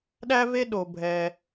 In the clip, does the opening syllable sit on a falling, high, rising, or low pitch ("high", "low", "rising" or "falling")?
high